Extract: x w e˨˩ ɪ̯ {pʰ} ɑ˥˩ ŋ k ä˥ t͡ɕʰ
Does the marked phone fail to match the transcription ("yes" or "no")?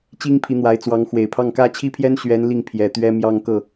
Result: no